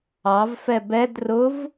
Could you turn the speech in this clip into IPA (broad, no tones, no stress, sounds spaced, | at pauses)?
ɑ v f ɛ b ɛ d r ʊ v